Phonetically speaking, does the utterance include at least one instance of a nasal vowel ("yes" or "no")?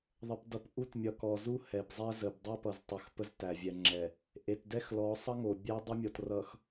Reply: no